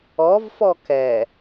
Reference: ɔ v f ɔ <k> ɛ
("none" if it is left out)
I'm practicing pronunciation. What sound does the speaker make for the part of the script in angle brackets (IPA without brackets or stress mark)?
k